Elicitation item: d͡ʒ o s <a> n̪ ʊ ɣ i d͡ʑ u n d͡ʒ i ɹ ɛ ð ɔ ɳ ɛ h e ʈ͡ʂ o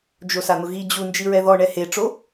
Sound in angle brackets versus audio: correct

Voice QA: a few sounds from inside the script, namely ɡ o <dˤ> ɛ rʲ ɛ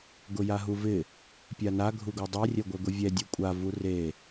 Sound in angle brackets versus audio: correct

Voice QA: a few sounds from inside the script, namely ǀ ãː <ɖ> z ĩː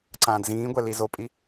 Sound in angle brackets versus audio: incorrect: d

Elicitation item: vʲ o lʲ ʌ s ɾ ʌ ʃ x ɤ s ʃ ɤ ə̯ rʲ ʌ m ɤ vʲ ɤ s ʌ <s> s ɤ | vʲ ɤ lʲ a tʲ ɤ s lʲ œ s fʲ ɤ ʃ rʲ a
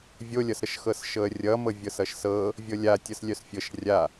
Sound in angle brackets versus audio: incorrect: ʃ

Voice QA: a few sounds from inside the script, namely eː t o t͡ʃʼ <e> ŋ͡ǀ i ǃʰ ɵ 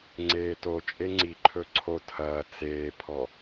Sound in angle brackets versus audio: correct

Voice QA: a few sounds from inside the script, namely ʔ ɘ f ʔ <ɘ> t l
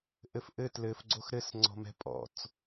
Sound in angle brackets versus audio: correct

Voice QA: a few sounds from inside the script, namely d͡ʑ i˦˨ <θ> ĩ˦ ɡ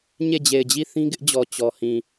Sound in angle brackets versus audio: correct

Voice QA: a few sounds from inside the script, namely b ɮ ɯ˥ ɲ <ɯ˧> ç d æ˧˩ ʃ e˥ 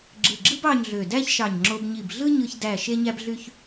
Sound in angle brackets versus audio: correct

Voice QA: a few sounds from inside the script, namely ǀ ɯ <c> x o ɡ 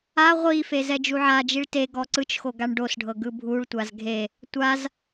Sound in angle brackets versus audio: incorrect: t͡ʃ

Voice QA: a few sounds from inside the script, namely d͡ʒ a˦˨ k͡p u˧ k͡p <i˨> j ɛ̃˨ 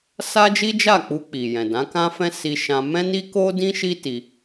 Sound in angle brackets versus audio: correct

